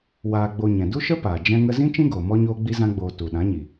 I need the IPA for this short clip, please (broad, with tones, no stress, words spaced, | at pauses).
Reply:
waː˧ɡ͡bo˧ɲɛ̃˨ du˦ʃə˦paː˨ d͡ʒɛ̃˦ŋə˦ zĩ˦t͡ʃĩ˦ɡoː˨ mɔ˦ɲoː˦ ɡ͡bi˦zã˦ɡ͡boː˧ tu˨ɗã˨˦ɲi˨